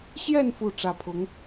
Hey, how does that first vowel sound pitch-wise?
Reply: falling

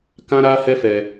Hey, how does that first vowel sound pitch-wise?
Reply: high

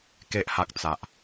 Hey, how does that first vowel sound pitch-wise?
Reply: low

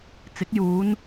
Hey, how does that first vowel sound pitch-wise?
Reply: rising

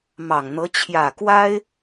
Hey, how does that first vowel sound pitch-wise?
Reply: low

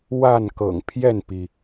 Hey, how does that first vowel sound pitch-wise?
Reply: falling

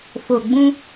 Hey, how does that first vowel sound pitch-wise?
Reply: low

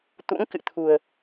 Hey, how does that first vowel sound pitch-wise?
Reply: rising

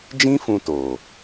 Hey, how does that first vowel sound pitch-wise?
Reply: high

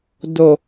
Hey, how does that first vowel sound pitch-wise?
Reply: low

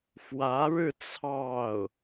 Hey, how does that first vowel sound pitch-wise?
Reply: rising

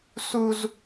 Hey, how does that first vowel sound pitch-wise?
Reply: high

